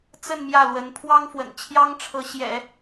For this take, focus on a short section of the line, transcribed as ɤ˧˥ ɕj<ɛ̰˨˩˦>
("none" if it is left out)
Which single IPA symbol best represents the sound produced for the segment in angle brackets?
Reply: ɛ̰˨˩˦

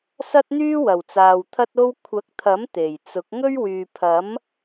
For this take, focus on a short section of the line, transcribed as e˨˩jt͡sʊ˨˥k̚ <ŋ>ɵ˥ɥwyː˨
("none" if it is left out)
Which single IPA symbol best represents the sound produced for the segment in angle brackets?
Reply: ŋ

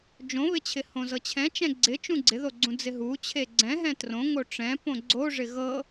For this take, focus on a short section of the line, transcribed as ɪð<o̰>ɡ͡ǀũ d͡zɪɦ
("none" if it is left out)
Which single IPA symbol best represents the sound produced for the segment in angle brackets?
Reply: o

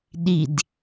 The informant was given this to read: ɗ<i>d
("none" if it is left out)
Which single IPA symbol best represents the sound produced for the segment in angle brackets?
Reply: i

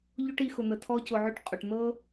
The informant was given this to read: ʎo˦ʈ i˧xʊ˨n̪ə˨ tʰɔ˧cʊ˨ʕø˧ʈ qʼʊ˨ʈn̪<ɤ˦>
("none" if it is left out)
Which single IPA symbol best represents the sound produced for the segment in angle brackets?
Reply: ɤ˦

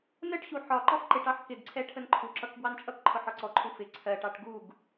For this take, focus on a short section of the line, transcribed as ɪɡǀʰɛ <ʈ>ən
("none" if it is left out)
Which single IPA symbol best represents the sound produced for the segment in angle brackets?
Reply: ʈʰ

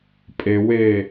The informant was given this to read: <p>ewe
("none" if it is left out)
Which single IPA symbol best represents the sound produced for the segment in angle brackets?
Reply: pʼ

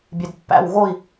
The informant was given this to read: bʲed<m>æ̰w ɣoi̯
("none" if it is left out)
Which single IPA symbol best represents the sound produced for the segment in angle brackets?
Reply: pː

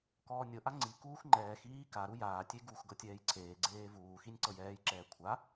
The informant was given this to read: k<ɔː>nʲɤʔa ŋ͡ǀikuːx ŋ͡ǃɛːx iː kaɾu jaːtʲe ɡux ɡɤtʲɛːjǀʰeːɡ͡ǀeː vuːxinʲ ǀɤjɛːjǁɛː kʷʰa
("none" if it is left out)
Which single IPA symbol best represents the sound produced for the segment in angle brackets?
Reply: ɔː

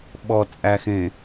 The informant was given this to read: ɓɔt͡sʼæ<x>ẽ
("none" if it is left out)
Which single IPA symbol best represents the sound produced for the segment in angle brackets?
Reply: x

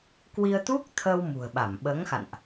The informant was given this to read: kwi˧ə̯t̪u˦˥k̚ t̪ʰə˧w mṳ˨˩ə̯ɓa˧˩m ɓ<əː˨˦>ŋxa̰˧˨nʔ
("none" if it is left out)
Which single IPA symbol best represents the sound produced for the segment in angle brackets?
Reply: əː˨˦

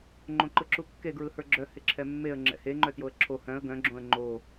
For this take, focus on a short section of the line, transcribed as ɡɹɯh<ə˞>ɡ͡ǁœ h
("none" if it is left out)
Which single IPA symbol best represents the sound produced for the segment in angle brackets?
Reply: ə˞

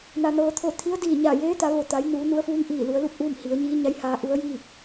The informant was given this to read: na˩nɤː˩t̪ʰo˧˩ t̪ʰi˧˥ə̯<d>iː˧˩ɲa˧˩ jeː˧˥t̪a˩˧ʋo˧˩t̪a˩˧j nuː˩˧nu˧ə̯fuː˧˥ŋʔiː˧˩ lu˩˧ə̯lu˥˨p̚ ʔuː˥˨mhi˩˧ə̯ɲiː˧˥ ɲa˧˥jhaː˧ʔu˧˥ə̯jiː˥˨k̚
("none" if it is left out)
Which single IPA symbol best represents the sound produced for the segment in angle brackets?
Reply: d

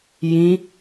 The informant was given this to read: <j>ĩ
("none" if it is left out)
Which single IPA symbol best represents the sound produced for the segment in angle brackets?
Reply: j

